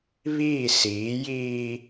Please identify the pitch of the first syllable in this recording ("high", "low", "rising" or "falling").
falling